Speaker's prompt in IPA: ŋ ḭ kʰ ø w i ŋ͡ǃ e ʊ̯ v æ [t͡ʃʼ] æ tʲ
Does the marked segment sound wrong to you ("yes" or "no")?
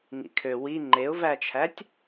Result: yes